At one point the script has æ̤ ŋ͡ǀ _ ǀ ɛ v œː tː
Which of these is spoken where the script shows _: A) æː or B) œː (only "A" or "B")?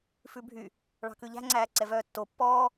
A